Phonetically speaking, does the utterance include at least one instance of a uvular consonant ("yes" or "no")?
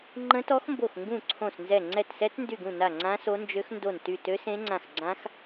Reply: no